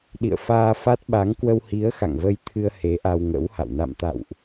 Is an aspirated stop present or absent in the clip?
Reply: present